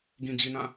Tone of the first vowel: low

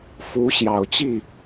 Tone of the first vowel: rising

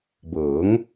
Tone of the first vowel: rising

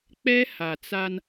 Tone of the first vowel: high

